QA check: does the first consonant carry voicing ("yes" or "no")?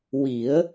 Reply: yes